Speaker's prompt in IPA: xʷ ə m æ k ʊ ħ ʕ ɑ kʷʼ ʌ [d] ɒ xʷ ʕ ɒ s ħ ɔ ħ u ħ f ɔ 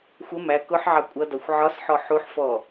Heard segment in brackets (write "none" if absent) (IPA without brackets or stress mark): d